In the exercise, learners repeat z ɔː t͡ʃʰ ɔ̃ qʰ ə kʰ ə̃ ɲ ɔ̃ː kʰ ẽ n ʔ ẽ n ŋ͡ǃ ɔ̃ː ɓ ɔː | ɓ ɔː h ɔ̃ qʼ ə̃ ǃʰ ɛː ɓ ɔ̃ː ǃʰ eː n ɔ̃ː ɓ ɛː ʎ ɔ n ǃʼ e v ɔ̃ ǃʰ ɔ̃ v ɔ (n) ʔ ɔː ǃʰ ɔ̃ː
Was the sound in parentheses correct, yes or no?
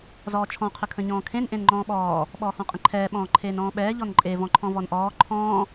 yes